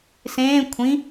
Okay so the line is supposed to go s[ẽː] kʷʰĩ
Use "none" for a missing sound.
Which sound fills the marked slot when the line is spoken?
ẽː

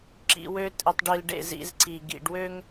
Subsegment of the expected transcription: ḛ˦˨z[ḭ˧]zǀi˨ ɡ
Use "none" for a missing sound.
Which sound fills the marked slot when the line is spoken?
ḭ˧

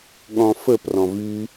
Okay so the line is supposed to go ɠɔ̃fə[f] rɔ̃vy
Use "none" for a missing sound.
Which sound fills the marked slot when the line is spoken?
p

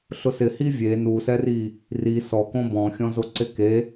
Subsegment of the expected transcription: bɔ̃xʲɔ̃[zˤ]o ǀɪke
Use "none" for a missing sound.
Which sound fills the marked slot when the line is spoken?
z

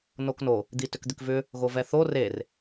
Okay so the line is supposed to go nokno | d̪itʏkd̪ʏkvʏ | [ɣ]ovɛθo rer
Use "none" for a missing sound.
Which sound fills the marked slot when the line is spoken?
ɣ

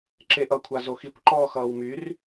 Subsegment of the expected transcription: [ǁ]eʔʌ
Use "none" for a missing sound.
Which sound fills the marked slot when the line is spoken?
ǁ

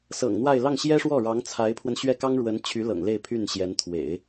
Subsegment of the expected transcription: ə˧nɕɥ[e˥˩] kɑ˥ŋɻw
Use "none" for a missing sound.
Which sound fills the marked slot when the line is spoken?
ɛ˥˩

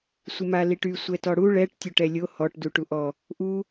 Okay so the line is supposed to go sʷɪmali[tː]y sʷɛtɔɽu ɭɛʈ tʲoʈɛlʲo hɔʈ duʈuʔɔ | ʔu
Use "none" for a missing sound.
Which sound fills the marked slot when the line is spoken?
ʈ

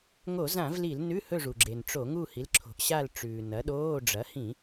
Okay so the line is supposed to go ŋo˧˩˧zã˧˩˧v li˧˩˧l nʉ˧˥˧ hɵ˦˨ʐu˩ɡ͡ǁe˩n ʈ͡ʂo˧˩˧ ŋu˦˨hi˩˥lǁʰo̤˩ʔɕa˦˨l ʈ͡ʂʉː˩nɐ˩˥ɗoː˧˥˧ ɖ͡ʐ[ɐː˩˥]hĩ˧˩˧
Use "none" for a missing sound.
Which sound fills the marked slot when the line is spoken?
ɐ˩˥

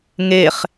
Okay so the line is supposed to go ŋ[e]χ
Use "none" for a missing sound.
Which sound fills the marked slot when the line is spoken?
e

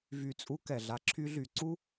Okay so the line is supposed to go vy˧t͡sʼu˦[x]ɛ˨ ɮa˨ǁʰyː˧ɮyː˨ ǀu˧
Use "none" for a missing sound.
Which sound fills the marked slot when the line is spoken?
k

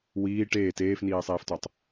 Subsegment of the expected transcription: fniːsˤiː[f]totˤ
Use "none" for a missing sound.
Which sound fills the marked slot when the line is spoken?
f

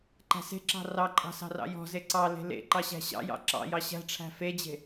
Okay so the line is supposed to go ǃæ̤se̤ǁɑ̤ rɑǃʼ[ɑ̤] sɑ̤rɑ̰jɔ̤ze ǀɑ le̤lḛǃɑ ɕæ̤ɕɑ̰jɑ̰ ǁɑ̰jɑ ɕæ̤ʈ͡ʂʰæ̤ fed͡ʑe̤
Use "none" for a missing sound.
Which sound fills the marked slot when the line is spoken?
ɑ̤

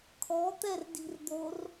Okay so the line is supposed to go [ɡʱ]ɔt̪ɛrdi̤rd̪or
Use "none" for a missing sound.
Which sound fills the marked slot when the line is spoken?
kʰ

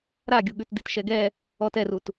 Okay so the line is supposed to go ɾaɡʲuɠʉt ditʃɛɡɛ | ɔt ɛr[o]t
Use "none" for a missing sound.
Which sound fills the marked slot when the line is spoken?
u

